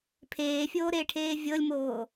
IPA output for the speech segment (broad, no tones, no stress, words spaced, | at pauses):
pʰeːfʲoː ɾeːʈʰeːvʲɤlʲmoː